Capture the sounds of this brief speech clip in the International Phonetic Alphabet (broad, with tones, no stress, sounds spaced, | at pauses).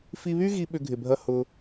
f i˧ β y˦ ɣ i˧ ɓ ʏ˦ ɡʱ ɪ˧ bʱ ɐ˦ h ʊ˦